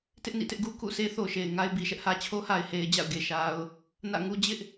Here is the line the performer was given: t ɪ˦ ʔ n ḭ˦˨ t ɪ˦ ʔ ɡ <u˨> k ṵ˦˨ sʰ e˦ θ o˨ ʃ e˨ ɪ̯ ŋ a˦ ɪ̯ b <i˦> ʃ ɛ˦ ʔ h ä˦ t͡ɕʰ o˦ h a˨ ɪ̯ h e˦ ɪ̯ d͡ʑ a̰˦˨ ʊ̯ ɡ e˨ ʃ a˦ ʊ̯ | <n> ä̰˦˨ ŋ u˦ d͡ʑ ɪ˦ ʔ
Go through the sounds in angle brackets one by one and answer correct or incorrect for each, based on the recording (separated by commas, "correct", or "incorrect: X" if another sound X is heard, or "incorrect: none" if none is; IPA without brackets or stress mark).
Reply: incorrect: u˦, incorrect: i˨, correct